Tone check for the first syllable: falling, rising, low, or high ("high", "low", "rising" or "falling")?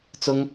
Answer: high